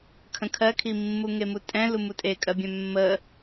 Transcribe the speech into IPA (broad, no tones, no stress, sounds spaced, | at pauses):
kʰ ə̃ kʰ ɜ kʰ i mː u ŋ e m u tʼ ɛ̃ l u m u tʼ e kʼ ɜ bʲ ɛ̃ mː ə